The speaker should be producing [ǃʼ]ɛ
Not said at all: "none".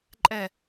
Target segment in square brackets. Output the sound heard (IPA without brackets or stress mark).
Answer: ǃʼ